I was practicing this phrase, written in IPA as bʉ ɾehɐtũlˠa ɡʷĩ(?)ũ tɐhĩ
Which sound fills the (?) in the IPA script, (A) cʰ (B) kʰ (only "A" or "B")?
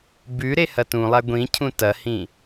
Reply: A